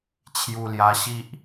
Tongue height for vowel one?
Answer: high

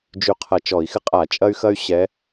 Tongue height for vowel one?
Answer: high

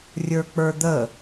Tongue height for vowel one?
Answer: mid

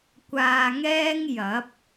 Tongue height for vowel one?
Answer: low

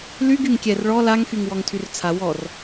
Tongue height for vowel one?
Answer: high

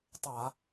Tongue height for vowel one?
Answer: low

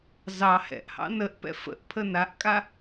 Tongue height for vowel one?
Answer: low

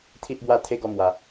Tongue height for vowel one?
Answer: high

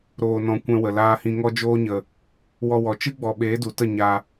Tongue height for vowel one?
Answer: mid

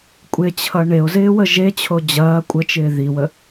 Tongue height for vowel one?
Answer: mid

